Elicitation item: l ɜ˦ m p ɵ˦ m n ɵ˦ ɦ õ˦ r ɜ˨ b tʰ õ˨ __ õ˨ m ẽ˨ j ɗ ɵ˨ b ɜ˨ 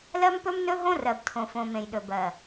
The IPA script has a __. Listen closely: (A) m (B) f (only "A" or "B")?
B